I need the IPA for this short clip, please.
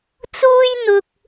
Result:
t͡s uː˥ j n̪ ʊ˧ k̚

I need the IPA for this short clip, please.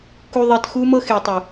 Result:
k u˨ ðˤ e˨ t x u˧ m ɤ˧ x e˨ tˤ ɯ˨

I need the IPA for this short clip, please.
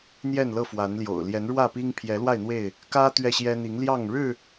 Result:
n̪ j ɛ˥˨ n l ɤ˥˨ f w a˨˦ n l j o̰˨˩ ʊ̯ l j ɛ˨˦ n ɻ w ä˥˨ p i˦ ŋ pʰ j ɛ˨˦ l w a˥˨ ɪ̯ n̪ w e˥˨ ɪ̯ | k ä˦ t̪ ɥ ɛ˥˨ ɕ j ɛ˦ n̪ i˨˦ ŋ l j ɑ˥˨ ŋ ɻ ɻ̩˥˨

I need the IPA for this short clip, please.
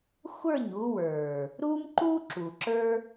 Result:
xʷ ə˞˦˨ ɲ u˧ w ə˞˨ | ɾ u˦ m ǃ u˦ ǁ u˨ ǁ ə˞˦

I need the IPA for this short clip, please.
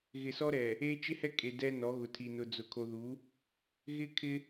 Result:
ɣ ɪ˨ s ɔ˦ ɾ ɛ˨ | e˦ t͡ʃ ɪ˦ h ɛ˦ kʼ e˨ d ɛ˦ n ɔ˨˦ ɣ ʊ˨ tʰ i˨ n ʊ˨ d͡z ʊ˨ kʰ o˨ ð u˨˦ | ɣ ɪ˦ kʰ ɪ˦

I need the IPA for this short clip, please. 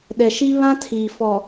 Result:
ɗ ɛ˨ ʃ i˦ β ã˦ tʰ iː˨ f ɔ˨

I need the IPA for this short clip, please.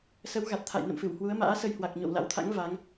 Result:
s ə˨˦ w ɣ a˨˩ t̚ t̪ʰ a̰˧˨ j n ə̰˧˨ m f ɨ˧˩ w h w u˨˦ ə̯ m a̰ː˧˥ s ə˧ j h w a˨˩ k̚ ɲ o̰˧˨ w l a̰˧˥ w t̪ʰ a̰˧˥ ŋ v a˨˦ ŋ

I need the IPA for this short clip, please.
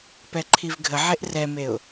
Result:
p ɛ ǃʰ i v ɡʱ ə ʕ e ʔ r ɛ m e ʊ̯

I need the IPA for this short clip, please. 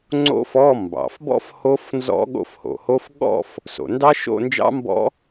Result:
ŋ͡ǀ o̰˦˥ f ɔ˧˥˧ m b ɑ̰˩ f b ɔ̰˦˥ f h o˦˥ f n z ɔ̰˦˥ ɠ o̰˥˨ f h o̰˩ h o˦˥ f ɠ ɔ̰˥˨ f | s o̰˩ n d ɑ˦˥ ʃ o̰˥˨ n d͡ʒ ɑ̰˦˥ m b ɔ̰˦˥

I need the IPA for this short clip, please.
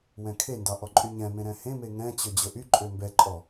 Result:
w ɛ̃ kʰ e n d ɑ ʔ ɔ ǃʼ y ɲ ɛ̃ m ẽ ɾ ɛ̃ h ẽ m e ŋ ɛ̃ t͡ɕ ø d͡ʑ ɵ ʔ y ǃʼ ø m b ɛ ǃʼ ɔ

